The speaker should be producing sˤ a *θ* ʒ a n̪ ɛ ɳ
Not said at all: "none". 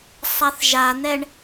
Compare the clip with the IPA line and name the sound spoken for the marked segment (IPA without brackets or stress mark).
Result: θ